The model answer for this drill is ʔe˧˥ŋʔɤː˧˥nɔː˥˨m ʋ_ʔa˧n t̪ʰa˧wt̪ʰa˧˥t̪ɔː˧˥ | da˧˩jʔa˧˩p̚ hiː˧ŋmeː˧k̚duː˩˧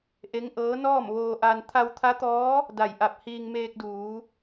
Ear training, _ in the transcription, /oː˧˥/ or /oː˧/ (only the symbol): oː˧